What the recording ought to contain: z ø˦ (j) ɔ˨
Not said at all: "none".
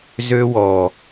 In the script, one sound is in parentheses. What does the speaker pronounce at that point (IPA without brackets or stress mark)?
w